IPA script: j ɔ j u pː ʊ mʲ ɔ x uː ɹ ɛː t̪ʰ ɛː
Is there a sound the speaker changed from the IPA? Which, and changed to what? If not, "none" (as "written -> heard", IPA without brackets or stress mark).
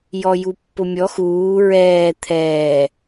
none